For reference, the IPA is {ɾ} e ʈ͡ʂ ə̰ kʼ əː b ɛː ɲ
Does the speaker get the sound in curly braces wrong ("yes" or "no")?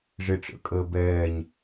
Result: yes